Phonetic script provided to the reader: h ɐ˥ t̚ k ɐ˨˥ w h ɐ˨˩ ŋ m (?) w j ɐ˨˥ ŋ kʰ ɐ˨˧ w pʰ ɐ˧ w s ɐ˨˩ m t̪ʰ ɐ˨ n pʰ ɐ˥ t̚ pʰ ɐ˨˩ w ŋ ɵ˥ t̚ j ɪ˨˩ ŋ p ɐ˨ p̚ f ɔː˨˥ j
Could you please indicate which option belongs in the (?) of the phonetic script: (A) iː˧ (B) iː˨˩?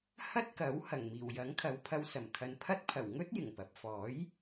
B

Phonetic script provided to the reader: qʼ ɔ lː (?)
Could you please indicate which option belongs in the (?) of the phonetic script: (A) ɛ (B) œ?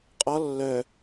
B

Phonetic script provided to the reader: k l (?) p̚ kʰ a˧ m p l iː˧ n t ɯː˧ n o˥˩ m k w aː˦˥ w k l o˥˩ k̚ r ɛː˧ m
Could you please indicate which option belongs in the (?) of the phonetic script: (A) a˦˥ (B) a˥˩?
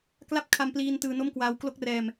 A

